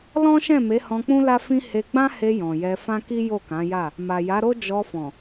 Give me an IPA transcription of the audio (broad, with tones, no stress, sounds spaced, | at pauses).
l ɔ̃˦ ʃ ɛ̃˦˨ m e˨˦ h ɔ̃˧ k͡p ũ˦ l a˦ f ĩ˦ h e˧ ɡ͡b ã˦ h e˧ j ɔ̃˨ j ɛ˧ f ã˦ k i˦ j o˦˨ k ã˨˦ j a˦˨ | m a˨ j a˨˦ ɾ o˦ d͡ʒ ɔ˧ f ɔ̃˨